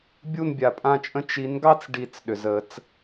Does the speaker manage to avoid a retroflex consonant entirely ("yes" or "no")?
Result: no